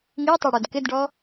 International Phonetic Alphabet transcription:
ŋ i tˤ e ɽ o d k ɪ d ɖ ɔ

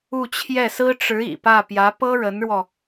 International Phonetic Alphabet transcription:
u˥˧ t͡ɕʰ j ɛ˥˩ s ɹ̩˥ ʈ͡ʂ ɻ̩˧˥ ḭ˨˩ p ä˥˩ p j ä˧˥ p ɤ˥ ɻ ə˧˥ n ɻ w ɔ˧

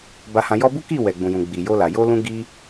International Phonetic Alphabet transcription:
b a˧ h ã˧ j ɔ˦ b u˦ k i˦˨ w ɛ˨ ɡ͡b ũ˨ j ũ˨ ɡ͡b i˨ j o˧ l a˨ j o˧ l ũ˧ ɡ i˧

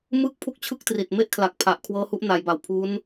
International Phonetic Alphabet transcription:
m ɯː˥˩ k̚ pʰ u˥˩ k̚ t͡ɕʰ ɯ˥˩ k̚ t r i˨˩ t̚ m e˦˥ ʔ kʰ l a˨˩ k̚ pʰ a˨˩ ʔ kʰ w ɤː˦˥ h u˦˥ ʔ n aː˩˦ j b a˨˩ w pʰ uː˦˥ n

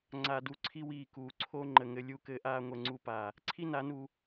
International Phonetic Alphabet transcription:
ŋ͡ǀ a˨ d u˨ ǀʰ i˦ w iː˧ k uː˨ ǀʰ o˧ ŋ͡ǃ ə˨ ŋ ɘ˧ lʲ u˧ k ɘː˧ ʔ aː˧ ŋʷ ɛ˧ ŋ͡ǀ u˦ p aː˧ | ǀʰ i˦ n a˨˦ n uː˧

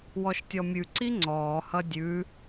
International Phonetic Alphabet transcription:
w ɔ ʃ tʲ ɔ mʲ ʉ ǀ i ŋ͡ǀ ɔː h ʌ dʲ ʉ

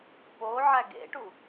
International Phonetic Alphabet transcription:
p o ʕ æ ɡ ḛ ʈ u

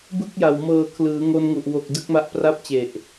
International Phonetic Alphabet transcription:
b ɯ˥˩ k̚ j a˨˩ w m ɤː˨˩ kʰ l ɯː˩˦ ŋ o˧ n ŋ u˨˩ ʔ w o˨˩ k̚ d ɯ˦˥ k̚ m a˦˥ ʔ p r a˥˩ p̚ t͡ɕ e˨˩ ʔ

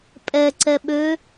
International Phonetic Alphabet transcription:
pʼ ɛ ǀ ɛ ɓ ø

